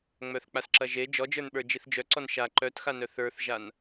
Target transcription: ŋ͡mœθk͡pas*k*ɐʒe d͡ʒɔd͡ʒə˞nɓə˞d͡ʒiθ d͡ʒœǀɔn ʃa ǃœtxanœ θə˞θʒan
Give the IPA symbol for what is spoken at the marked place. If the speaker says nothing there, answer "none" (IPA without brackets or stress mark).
ǁ